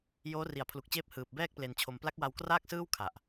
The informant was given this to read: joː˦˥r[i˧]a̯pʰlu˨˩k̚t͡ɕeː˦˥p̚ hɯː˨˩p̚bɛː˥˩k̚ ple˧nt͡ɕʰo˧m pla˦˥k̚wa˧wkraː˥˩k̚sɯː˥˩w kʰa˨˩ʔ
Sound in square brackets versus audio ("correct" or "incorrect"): incorrect